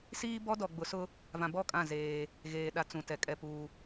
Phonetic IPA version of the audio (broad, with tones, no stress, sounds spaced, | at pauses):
s iː˦ b ɔ˦ d ɔ˨ ɡ͡b ʊ˨ s ʊ˦ | v ã˨ b ɔ˦˨ kʼ ã˦˨ z eː˦ | ɣ eː˨ ɗ a˦ t͡s ũ˨ t ɛ˨ kʼ ɛ˦ p uː˦